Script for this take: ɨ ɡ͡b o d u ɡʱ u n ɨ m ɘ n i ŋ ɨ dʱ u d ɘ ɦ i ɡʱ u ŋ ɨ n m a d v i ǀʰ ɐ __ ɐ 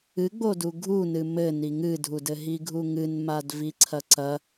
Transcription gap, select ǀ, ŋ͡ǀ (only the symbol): ǀ